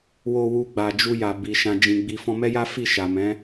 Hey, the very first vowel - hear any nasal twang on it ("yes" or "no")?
no